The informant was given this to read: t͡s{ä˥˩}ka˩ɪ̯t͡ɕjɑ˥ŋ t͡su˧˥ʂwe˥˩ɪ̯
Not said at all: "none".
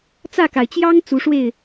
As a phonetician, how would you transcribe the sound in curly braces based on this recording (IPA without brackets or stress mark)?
ä˥˩